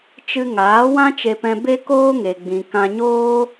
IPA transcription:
t͡ʃɨ˧ŋaː˨˦ wã˦t͡ʃe˧pɛ̃˧ be˦koː˦ŋe˨ɡ͡bĩ˨ kã˧ɲoː˦

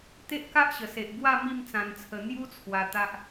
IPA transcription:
t̪e˦ʔka˦ʔɕə˨˩se˨ʔ ɡwa˥˧ mi˥˧mt͡sã˧nt͡sʰə˧ n̪ju˧ t͡sʰwa˧t̪a˦ʔ

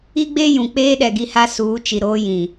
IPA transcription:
i˦ɡ͡be˦ jũ˨ k͡peː˦ ɗɛ˨ɡi˦ha˦ suː˨˦t͡ʃi˨ ɾoː˦jĩ˨

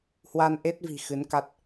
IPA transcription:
hwa˧nʔe˦˥t̚vi̤˨˩ xɨ˨˦nka˦˥t̚

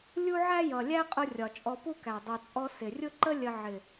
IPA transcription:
lʲu˦ʕæ˦jʌ˨ lʲæ˦qʼʊ˧ rʲɒ˨t͡ʃʼɔ˧ pu˦kæ˨ dˤɜ˨t͡sʼɔ˧ sɪ˨rʲʊ˦ǃə˦ lʲə˧ ʕɪ˨

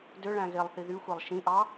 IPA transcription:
døɭæ̃ ɣelˠθi ðyxʷelˠ ʃĩʔɑ

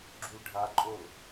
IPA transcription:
ɡ͡ǁulɖʱaǃʼol

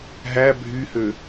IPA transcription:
ɦæ bʱyhø

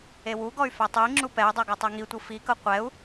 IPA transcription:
ewuɡɔy̯ fɛtˤɯi̯ŋ͡ǁu pɛy̯dˤo ɡotˤɛŋitʷɯ fikɤ qʷɛu̯

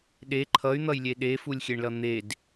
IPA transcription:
ɗe ǃʰʌy̯n̪ʌjlʲe ɗefulʲxʲeɳlʌ n̪ed

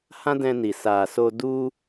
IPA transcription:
hã˦dɛ̃˧ni˨ sa˨so˧ du˦

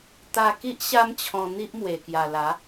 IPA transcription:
t̪a˧ki˦ʔ ɕa˦mt͡ɕʰɔ̃˧n̪i˦ʔmwe˨˩ kja˨˩la˨˦

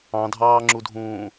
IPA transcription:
ɑ̃dʱɑːŋ͡ǁudʱũː

